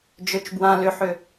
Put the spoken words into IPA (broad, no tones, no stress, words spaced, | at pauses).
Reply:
d͡ʒøt͡ʃbwã lʏħʏ